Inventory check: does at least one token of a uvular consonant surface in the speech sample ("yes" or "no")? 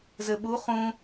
yes